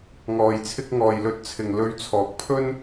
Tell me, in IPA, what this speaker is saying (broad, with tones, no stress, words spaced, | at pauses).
ŋɔː˨jt͡sʰɪ˧k̚ ŋɔː˨jlɵ˧t̚t͡sʰɪ˨ŋ lɵ˨˧ɥt͡sʰɔː˨˥k̚pʰɵ˥n